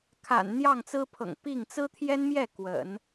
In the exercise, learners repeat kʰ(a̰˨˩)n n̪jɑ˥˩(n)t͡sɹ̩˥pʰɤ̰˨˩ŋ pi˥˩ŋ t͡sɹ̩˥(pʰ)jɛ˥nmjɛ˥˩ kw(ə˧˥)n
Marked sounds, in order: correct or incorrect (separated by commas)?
correct, incorrect, incorrect, incorrect